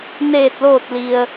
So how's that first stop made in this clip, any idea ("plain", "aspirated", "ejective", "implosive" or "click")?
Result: plain